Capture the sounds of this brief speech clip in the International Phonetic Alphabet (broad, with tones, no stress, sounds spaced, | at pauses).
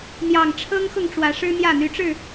n̪ j ɑ˨˩ ŋ ʈ͡ʂʰ ɤ˦ ŋ x ʊ˥˨ ŋ ʈ͡ʂ w ä˨˦ ʂ ɻ̩˦ n̪ j ä˥˨ n̪ y˨˦ ʈ͡ʂ ɻ̩˥˨